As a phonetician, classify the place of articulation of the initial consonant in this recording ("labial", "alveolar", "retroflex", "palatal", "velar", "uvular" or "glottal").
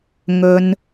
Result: velar